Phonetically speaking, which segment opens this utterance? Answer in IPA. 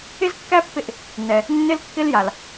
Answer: ɪ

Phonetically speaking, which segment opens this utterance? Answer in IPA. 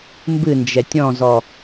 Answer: m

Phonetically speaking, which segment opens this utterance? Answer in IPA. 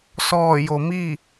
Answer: s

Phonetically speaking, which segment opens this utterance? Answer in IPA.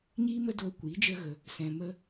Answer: ɲ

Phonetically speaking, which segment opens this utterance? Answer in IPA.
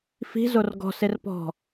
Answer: f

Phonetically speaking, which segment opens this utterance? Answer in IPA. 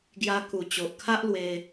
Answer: ɡ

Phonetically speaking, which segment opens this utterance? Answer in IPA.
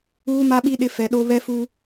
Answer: uː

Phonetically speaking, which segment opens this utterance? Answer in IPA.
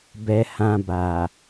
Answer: b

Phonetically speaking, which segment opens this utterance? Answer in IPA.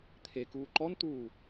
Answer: t̪ʰ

